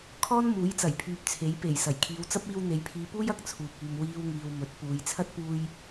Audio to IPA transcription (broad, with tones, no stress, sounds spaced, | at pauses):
kʰ ɔː˥ n m uː˨˥ j t͡s ɐ˨˩ j pʰ yː˨ p̚ t͡sʰ e˨˥ j p e˨˩ j s ɐ˨˩ j kʰ iː˨˧ w t͡s ɐ˥ p̚ iː˧ w n̪ e˨ j pʰ iː˨˧ p uː˥ j ɐ˨ k̚ t͡sʰ uː˨ p̚ yː˨ m w iː˧ w ŋ iː˨ w m ɵ˨˥ t̚ p uː˨ j t͡sʰ ɐ˥ t̚ p uː˧ j